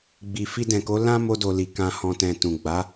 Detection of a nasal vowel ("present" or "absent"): present